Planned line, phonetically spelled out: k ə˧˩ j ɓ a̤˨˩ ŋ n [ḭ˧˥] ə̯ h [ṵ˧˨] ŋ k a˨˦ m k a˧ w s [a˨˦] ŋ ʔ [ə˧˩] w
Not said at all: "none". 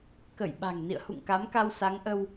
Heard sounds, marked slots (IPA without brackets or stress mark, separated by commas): ḭ˧˨, ṵ˧˨, a˨˦, ə˧